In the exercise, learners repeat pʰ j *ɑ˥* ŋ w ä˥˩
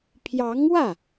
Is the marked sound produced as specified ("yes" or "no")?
no